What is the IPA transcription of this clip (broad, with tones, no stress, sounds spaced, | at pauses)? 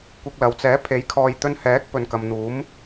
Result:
kʷ ɪ˧ k̚ l ɐ˨˧ w t͡s ɛː˨˥ pʰ e˨˥ j kʰ ɔː˨ j t̪ ɵ˧ n h ɛː˨˥ k̚ p ɵ˨ n k ɐ˨ m n̪ uː˨˥ m